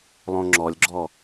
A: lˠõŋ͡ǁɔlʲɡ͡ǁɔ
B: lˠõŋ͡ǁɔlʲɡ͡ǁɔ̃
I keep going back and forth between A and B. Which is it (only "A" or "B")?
A